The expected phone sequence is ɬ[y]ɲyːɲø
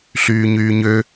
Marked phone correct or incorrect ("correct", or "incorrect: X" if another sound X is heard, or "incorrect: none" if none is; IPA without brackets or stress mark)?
incorrect: yː